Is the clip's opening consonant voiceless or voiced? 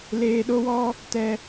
voiced